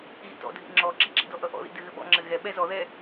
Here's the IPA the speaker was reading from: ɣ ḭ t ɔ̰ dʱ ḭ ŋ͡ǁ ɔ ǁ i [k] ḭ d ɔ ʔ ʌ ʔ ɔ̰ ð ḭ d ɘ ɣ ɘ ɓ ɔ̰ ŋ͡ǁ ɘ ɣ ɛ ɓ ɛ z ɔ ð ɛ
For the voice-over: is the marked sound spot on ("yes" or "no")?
no